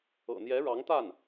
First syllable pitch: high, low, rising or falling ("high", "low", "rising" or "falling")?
low